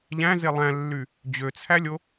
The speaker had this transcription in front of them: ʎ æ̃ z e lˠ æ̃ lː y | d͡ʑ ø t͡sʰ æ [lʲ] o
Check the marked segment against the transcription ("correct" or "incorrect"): correct